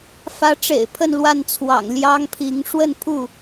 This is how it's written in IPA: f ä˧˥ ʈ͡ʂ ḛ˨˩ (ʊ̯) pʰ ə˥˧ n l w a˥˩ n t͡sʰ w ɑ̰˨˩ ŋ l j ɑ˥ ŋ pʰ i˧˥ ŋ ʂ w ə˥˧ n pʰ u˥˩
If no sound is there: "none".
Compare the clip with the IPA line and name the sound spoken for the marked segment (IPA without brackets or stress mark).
ɪ̯